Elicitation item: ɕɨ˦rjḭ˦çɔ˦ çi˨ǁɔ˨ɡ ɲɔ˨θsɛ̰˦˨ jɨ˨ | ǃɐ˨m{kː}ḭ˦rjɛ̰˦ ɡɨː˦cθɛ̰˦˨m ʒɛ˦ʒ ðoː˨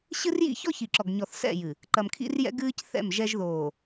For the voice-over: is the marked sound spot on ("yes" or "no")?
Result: no